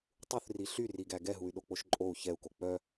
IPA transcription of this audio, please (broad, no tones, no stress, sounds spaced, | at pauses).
tˤ u θ r i ɬ y r i ɡ æ ɡ ɛ ɦ u y̯ ɗ o k͡p o ʃ ǃʼ o u̯ ç ɛ u̯ k o k͡p œ